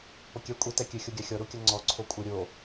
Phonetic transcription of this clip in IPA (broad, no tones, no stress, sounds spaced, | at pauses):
p o kʲ ɛ kʷʼ i t ɛ kʲ ɨ xʲ o ɡʲ a xʲ ɔ ɾ u kʲ ɐ ŋ͡ǀ ɔ ǀʰ o kʷʼ ɘ ɾʲ o